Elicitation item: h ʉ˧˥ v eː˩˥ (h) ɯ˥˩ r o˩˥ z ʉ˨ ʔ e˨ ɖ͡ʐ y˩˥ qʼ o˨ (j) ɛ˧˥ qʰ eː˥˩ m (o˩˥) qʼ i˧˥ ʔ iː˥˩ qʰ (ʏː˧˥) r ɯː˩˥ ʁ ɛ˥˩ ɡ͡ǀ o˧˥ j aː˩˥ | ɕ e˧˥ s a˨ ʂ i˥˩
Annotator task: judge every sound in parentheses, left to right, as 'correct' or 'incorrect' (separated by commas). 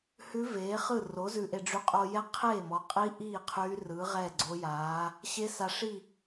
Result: incorrect, correct, incorrect, incorrect